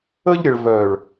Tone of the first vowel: high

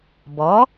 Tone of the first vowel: rising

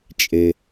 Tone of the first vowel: low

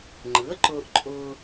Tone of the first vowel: rising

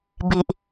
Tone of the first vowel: low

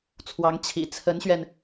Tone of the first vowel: rising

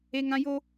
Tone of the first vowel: high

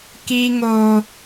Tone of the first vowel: high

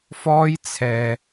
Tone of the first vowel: high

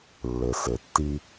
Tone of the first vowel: low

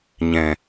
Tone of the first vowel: low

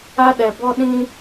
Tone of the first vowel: high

